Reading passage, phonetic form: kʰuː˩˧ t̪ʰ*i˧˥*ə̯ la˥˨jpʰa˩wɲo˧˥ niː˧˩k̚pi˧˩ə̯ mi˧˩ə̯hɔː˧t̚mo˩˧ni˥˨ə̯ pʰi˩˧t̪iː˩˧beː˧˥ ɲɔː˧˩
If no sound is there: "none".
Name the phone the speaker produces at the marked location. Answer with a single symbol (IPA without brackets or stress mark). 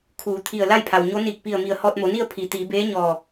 i˧˩